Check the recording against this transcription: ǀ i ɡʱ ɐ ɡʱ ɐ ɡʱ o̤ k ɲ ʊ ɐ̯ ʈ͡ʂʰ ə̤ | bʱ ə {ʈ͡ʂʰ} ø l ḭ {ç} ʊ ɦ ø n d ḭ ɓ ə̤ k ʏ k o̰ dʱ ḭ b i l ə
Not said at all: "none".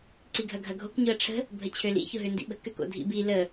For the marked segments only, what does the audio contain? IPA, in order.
t͡ɕʰ, ç

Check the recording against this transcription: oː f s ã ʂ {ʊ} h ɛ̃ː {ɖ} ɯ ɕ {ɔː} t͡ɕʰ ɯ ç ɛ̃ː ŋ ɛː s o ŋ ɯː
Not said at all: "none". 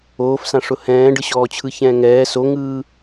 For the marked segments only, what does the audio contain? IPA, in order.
ʊ, ɖ, ɔː

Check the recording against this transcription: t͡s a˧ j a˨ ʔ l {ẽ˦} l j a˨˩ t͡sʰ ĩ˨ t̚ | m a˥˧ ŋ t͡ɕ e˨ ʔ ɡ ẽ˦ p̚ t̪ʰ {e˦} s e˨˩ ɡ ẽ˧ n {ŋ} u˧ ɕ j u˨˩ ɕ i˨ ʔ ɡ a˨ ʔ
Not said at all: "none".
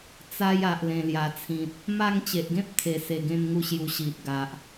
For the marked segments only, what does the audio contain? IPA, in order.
ẽ˨˩, e˨˩, ŋ

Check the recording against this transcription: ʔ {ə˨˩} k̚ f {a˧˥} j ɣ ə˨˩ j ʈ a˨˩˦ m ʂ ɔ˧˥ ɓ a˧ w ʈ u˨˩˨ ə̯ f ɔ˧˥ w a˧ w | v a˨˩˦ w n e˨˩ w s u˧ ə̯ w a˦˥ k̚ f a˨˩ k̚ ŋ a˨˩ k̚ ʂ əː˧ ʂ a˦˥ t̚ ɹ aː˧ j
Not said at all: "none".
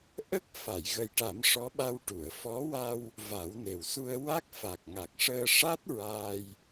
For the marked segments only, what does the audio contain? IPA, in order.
ə˦˥, a˨˩˨

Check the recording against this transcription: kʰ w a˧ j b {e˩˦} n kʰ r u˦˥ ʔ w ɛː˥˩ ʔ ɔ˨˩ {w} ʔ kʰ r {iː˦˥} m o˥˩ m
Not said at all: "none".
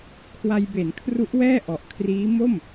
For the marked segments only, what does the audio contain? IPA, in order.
e˩˦, none, iː˦˥

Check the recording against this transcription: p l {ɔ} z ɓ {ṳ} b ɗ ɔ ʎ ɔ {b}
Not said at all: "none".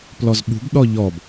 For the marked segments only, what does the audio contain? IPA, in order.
ɔ, ṳ, b

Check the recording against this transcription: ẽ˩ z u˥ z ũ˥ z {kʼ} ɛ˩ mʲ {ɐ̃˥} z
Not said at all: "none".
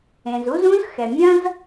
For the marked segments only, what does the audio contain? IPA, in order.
x, ɐ̃˥

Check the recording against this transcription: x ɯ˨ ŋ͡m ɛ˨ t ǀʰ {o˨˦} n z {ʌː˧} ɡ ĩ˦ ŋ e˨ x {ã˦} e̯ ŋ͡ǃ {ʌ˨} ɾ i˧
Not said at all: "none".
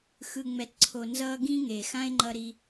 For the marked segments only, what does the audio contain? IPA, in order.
o˨, ʌː˧, ã˦, ʌ˧

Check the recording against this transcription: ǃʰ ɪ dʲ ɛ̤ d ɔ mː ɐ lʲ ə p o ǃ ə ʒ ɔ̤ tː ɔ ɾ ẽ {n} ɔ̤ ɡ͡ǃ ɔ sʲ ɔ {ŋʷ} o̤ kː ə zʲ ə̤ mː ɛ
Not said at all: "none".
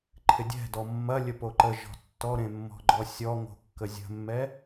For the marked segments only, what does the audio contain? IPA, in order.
mː, ŋ

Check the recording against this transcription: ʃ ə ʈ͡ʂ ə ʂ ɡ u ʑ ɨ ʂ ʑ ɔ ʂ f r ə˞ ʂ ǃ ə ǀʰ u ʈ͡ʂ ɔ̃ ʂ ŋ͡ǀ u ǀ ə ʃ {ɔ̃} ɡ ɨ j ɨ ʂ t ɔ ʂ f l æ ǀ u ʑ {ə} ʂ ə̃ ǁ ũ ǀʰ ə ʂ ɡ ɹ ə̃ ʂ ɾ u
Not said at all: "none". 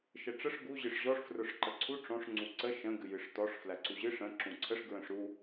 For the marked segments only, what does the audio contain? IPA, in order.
ə̃, ɨ

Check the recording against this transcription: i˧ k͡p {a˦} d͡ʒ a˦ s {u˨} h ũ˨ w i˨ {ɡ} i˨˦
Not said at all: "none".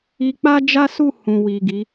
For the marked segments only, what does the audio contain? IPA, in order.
a˦, u˦˨, ɡ

